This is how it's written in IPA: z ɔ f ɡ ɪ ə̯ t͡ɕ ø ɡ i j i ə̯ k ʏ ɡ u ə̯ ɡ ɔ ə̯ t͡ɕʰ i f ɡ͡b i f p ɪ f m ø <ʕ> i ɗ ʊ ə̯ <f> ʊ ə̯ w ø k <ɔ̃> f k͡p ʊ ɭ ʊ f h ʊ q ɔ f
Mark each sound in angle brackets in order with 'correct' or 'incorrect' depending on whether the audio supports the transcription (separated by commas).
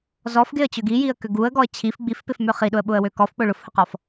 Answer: incorrect, incorrect, incorrect